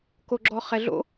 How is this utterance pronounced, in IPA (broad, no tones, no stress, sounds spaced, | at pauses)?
k o ɡ͡ǁ ɔ χ ɛ ɮ o̰